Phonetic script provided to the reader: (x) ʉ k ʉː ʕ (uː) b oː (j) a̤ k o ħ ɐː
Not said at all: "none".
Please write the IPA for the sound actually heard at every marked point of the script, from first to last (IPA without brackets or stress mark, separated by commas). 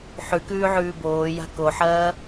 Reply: ħ, ʉː, j